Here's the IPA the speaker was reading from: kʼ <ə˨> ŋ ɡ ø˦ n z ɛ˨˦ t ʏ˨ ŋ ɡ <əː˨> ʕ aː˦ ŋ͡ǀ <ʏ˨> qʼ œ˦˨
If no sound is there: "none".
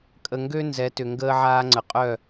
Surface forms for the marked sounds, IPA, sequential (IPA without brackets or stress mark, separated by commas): ə˨, əː˦, ə˨